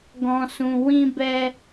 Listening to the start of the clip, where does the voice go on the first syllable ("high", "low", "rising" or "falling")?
low